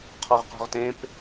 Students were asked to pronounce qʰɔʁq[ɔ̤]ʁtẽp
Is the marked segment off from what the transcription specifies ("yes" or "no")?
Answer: no